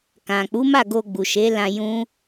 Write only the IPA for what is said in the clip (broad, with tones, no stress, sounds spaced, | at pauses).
k ã˨ k͡p u˨˦ m a˦˨ ɡ o˧ ɡ͡b u˨ ʃ e˨˦ l ã˧ j ũ˦